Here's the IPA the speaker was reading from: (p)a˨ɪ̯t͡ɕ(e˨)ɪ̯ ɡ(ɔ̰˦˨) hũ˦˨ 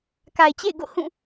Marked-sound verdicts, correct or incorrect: incorrect: k, incorrect: ḛ˦˨, incorrect: o̰˦˨

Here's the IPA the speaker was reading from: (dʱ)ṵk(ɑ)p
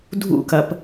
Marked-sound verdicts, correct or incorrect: correct, incorrect: ɐ

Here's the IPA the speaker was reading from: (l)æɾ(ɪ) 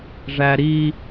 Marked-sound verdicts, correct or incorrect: incorrect: ʐ, incorrect: i

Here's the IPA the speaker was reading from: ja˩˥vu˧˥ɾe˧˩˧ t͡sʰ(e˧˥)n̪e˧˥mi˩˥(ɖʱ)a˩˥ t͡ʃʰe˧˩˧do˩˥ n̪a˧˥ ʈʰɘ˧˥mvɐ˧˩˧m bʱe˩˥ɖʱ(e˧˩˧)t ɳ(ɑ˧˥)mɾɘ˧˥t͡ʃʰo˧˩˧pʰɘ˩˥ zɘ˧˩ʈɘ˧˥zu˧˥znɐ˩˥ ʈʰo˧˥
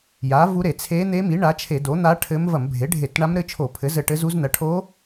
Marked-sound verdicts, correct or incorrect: correct, incorrect: ɳ, correct, incorrect: a˧˥

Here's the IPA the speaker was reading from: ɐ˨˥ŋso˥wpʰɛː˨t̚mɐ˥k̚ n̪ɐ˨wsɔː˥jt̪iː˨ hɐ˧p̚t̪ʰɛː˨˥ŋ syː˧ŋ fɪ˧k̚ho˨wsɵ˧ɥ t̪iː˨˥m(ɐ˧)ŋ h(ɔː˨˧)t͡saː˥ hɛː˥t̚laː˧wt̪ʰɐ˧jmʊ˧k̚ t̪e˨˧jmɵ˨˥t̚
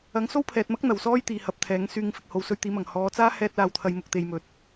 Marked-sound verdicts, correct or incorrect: incorrect: ɐ˨˩, correct

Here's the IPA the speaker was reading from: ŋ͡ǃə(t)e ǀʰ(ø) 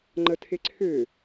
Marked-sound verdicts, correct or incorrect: incorrect: tʰ, correct

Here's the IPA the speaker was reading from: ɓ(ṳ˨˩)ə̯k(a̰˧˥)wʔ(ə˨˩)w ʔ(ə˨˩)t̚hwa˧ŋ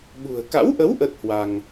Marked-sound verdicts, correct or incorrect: correct, correct, incorrect: ə˨˦, incorrect: ə˦˥

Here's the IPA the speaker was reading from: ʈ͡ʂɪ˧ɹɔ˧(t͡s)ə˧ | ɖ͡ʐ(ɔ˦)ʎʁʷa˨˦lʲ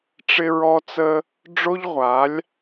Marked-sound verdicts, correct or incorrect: correct, incorrect: o˦

